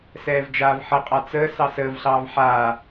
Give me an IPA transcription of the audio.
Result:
s ɛː v d͡ʒ aː v ħ ə qʼ a t͡s əː s ɑ s əː v ɬ ɑː v ħ aː

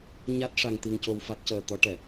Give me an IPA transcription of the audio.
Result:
ɲ a˦˥ t̚ ʂ a˧ ŋ t̪ i˧ ŋ c o˧ w f a˦˥ t̚ c əː˧ t̪ ɔ˧˥ ʈ ɛ˨˩˨

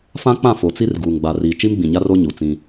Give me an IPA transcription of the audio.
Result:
f ã˦ k͡p ã˦˨ f o˨ t͡s i˦ r ɡ uː˨ ŋ ɡ͡b a˨ r iː˨ t͡ʃ i˦ m ɡ͡b ĩ˨ ɲ a˦ r o˦ ɲ u˨ t͡s ĩ˦

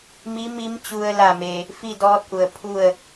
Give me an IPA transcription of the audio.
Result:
m i˧˥ m i˧˥ m t͡ɕ u˧ ə̯ l a˥˨ m e˧ | f i˥˨ d ɔː˧˥ t̚ ʔ u˩ ə̯ pʰ u˥˨ ə̯

